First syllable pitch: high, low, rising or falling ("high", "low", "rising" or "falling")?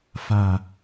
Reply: low